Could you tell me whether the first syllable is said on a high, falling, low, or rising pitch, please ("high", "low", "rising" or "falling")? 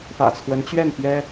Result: low